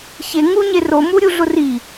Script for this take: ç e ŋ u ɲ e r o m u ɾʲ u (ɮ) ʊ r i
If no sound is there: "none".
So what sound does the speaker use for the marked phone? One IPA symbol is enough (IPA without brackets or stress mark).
ɮ